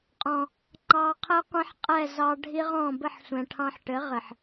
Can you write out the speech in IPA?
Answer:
qʼ ɔ̃˨ | ŋ͡ǃ ɑ˧ qʰ ɘ˦ qʷ ɛ̃˦ ħ qʼ ɛ˦˨ z ɑ˧ ɖʱ i˦ ʁ ɔ̃˦˨ b ɘ˦˨ ħ sʷ ɛ̃˨ ʈʰ ɑ̃˧ ħ ʈ ɘ˨˦ ʁ ɘ˨ ħ

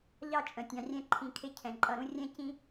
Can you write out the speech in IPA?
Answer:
ʎ ɑ˦˨ t͡ʃʼ ə̃˨ tʲ ɑ̃˨ rʲ ɛ̃˧ ǃʰ ĩ˨ kʰ ɪ˧ cʰ ɛ̃˨ ǃʼ ʌ˦˨ ɾ ũ˦ rʲ ɛ̃˦ c ĩ˦

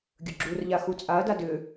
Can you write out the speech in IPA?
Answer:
ɡʲ ɵ ɡ͡ǁ u r ʎ a x u t͡sʼ a ɐ̯ d a d ʏ

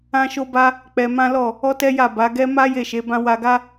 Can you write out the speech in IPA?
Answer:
ã˦ ʃ o˦ b a˦ | k͡p ɛ˧ m ã˦ l ɔ˦˨ | ɔ˦ t ɛ˦ j a˦˨ b a˨˦ ɡ ɛ˦ m a˦ j e˦˨ ʃ e˨˦ b ã˦ w a˧ ɡ a˦

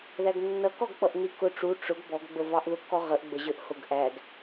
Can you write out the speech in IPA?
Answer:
ð æ ɡ nː ʌ k ɔ ɡ k͡p ʌ ʔ n i k ʊ ʈ͡ʂ u ʈ͡ʂ ʊ ɡ b ɔ ɡ ɡ͡b ə v ɑ ʔ ð ʊ k ɔ ʁ ə ʔ ɡ͡b ə ʑ ə˞ ʔ h ʊ ɡ ʔ æ ɡ

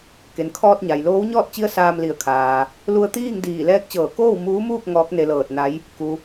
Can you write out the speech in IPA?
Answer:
k e˩ n kʰ ɔː˧ t̚ ɲ a˩ j l oː˧˥ w ɲ ɔː˥˨ t̚ t͡ɕ i˧˥ ə̯ s aː˧ m l i˧˩ ə̯ kʰ aː˩ | l u˧ ə̯ t̪ iː˥˨ ŋ d iː˧˩ l ɛː˧˥ k̚ t͡ɕ ɤː˧˩ k oː˥˨ w m uː˧˥ m uː˥˨ k̚ ŋ ɔː˧˥ k̚ n e˧ l ɤː˧˩ t̚ n a˧˥ j | k u˩

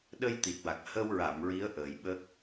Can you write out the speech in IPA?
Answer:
ɗ ə˧ j t̪ i˨˩ t̚ w a˨˩ k̚ h ə˧ w ɹ a˨˩˨ m ɹ i˧˥ ə̯ ʔ əː˨˩ j ɓ ə˦˥ k̚

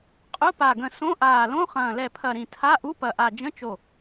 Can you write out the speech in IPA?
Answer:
qʼ ʊ˧˥˧ p a˧˩ ɡ ə̃˧˩ s õ˧˥˧ ʔ aː˧˩ l õ˧˥˧ χ ɐ̃ː˧˩ l ɛ˧˩ pʰ ɐ˧˩ ɾ ĩ˧˩ tʰ a˧˥˧ ʔ u˧˥˧ p ɐ˧˩ ʔ a˧˩ d͡ʒ ə̃˧˥˧ t͡ʃ o˧˩

